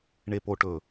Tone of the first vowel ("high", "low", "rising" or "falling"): low